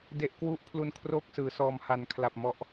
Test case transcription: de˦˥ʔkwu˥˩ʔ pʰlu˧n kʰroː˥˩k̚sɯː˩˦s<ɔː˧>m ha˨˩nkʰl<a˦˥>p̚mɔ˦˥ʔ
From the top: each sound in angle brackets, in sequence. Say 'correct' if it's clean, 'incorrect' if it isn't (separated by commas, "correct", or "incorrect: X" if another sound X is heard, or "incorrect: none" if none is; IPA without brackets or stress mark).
correct, incorrect: a˨˩